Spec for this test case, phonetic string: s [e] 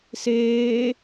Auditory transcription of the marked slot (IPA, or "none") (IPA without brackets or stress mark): eː